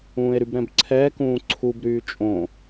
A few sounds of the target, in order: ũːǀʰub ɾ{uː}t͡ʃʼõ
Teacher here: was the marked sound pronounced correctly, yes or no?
no